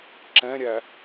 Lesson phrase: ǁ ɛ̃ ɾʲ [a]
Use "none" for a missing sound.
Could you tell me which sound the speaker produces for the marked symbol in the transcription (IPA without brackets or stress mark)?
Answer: æ